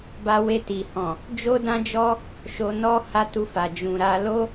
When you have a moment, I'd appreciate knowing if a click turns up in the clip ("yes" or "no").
no